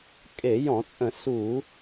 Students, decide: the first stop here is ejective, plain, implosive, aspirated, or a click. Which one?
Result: ejective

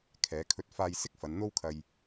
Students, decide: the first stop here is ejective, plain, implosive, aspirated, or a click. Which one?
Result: aspirated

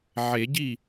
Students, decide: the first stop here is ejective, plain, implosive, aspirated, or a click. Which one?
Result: plain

